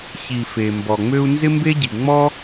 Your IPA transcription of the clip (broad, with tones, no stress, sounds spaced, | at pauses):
ç i˩ f e˩ m b ɔ˩ ŋ͡m ø˥ u̯ n z ɪ˥ m b e˥ ɟ i˩ ŋ͡m ɔ˥